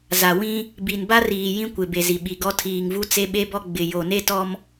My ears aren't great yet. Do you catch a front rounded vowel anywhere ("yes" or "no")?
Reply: no